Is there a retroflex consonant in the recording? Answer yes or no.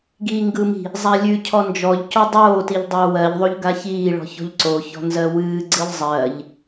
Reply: yes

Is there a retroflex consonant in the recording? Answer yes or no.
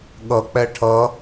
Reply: yes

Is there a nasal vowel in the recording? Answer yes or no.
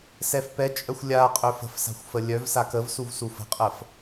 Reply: no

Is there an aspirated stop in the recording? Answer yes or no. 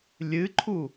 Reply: yes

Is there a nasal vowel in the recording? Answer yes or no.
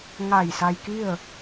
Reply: no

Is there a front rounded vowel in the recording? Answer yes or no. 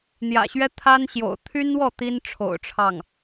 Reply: yes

